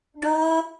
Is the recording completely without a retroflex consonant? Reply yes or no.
no